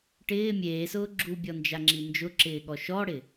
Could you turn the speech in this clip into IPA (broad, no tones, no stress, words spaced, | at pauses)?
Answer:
ʈɪː mʲeːsʊː ɡ͡ǁubʲɔnd͡ʒaŋ͡ǁi nd͡ʒʊǁɪːɠɔ ʃɔɽɪ